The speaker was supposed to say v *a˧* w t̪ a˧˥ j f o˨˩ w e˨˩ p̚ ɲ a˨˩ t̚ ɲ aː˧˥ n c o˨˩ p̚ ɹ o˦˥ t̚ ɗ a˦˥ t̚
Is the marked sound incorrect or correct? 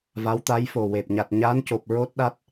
incorrect